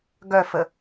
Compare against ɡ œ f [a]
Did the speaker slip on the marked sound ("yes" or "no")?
yes